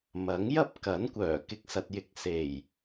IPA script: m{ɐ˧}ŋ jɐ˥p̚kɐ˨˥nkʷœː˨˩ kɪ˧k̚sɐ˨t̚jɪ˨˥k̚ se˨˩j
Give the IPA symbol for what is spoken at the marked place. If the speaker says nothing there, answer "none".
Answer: ɐ˨˥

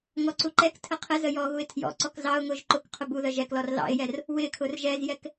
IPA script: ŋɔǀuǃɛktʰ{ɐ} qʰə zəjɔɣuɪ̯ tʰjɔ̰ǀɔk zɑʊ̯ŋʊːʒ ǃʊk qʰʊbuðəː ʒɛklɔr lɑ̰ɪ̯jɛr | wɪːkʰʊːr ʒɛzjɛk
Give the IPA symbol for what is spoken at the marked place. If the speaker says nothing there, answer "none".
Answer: ə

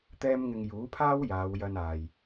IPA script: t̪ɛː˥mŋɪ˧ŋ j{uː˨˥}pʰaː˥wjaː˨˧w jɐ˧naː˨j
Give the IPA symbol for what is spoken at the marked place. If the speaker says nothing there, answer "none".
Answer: uː˨˥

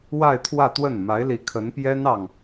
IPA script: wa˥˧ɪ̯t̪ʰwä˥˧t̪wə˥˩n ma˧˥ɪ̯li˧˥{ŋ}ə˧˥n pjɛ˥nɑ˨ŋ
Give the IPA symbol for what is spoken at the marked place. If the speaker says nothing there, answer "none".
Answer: kʰ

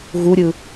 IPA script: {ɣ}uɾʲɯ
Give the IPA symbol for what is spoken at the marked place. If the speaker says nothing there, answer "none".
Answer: ɣ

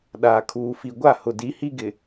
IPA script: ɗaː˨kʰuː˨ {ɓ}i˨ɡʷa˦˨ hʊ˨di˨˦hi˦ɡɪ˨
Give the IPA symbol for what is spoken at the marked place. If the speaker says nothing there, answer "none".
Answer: f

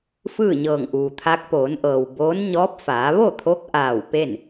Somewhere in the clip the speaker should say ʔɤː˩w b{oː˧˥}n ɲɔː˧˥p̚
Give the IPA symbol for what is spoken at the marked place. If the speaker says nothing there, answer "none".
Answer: oː˧˥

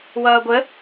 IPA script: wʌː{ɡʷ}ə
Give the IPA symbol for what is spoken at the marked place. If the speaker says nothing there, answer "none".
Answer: ɡʷ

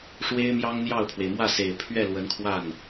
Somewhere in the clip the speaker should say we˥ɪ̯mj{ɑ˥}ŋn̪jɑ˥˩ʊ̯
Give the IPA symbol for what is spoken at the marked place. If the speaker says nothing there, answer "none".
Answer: ɑ˥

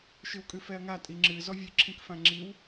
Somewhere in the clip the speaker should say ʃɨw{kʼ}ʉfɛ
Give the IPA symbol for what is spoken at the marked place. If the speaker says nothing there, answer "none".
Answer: kʼ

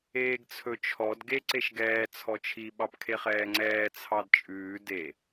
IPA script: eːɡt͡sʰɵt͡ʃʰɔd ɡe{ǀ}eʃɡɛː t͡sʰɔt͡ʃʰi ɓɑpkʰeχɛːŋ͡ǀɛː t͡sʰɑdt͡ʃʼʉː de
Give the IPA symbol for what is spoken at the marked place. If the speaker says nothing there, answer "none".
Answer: ǀ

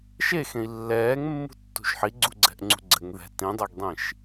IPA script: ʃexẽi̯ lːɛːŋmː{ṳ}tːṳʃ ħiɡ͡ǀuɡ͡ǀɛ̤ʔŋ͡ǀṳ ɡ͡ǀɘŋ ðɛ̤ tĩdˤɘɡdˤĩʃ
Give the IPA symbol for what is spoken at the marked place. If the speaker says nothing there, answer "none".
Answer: ṳ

